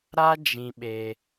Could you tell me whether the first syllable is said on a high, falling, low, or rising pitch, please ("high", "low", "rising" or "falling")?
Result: high